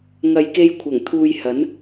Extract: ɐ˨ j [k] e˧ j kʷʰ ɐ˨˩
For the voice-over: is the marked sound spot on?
yes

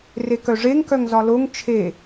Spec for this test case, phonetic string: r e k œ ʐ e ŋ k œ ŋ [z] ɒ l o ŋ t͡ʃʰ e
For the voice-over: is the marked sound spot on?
yes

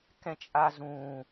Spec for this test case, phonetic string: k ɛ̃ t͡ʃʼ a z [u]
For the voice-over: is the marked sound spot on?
no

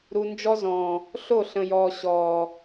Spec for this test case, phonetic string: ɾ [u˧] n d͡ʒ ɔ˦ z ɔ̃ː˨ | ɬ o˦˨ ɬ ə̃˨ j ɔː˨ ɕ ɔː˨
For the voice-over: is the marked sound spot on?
yes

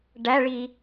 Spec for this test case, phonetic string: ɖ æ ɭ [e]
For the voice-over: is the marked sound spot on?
no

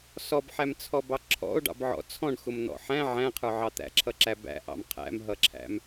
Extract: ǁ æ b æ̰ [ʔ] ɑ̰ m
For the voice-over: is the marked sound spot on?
yes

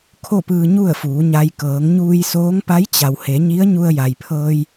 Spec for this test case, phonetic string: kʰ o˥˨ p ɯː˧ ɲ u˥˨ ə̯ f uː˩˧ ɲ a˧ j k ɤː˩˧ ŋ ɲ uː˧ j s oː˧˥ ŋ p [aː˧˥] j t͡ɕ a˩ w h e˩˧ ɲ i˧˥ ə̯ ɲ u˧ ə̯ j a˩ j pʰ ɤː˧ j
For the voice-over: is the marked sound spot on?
no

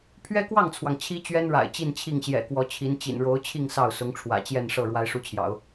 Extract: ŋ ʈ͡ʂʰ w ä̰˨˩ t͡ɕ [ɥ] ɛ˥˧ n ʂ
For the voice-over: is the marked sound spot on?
no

